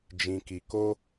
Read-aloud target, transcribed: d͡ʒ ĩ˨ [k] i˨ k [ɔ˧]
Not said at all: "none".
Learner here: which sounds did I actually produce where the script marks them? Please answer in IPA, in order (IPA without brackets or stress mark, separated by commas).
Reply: k, o˧